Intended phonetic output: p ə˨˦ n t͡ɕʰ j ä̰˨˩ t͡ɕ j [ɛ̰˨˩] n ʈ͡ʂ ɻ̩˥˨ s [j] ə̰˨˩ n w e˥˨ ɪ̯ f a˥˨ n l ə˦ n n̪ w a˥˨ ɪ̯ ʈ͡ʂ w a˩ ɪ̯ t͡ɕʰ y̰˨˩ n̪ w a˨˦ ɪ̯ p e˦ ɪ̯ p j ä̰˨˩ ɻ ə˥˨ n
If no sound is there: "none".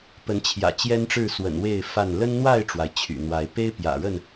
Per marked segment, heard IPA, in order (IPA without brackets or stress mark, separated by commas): ɛ˦, w